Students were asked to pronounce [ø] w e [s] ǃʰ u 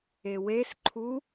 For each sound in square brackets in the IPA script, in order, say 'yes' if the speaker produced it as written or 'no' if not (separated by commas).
no, yes